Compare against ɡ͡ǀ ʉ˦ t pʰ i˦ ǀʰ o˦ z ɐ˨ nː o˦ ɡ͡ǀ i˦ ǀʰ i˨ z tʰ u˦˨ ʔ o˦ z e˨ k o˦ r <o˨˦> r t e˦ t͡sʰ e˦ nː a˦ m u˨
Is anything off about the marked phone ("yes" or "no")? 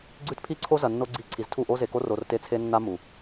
yes